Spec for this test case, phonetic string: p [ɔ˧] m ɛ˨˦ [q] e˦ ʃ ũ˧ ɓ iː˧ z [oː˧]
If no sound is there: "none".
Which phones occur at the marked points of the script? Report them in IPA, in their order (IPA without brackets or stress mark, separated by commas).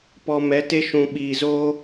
ɔ˧, t, oː˦